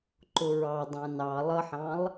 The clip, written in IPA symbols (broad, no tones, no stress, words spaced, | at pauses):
ǃʊɹɑ dˤæ̃nɑ lˠʌħɑ̃lˠ